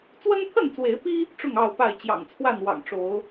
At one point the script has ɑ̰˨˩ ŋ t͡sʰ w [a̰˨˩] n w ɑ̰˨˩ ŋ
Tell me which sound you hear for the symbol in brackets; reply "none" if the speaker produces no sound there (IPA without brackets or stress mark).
a˥˨